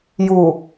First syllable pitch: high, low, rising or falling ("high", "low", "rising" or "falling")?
low